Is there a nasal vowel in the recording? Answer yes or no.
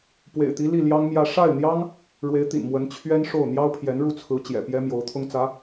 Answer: no